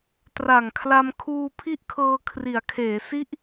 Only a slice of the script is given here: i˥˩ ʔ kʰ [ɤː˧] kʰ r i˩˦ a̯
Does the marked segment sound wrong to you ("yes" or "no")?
no